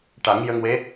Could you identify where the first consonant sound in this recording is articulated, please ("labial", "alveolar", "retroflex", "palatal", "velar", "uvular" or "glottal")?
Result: retroflex